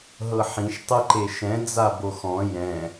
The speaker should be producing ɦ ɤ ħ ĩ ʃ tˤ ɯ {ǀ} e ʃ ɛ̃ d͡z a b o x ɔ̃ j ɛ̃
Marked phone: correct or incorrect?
incorrect